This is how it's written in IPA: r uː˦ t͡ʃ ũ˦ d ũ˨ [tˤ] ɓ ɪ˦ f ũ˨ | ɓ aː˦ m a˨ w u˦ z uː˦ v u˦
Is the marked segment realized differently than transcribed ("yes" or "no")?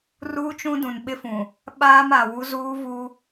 yes